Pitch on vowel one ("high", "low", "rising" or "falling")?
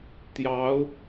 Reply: rising